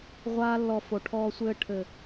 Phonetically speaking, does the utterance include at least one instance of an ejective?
no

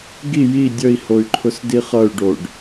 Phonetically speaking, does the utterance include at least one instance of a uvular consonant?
yes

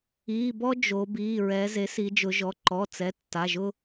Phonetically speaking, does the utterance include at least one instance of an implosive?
no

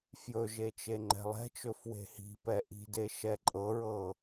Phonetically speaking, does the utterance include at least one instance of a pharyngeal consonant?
no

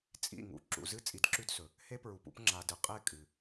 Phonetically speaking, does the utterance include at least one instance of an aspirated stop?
no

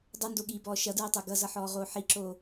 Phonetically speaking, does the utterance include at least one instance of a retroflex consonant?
no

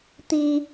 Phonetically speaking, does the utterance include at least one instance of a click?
no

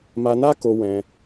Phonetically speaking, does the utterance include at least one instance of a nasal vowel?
yes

